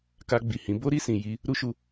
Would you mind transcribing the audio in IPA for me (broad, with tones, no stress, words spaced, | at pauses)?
ka˧ɡ͡bi˨hĩ˨˦ bo˦ɾi˧sĩ˨ ji˧ | ɾu˦ ʃu˧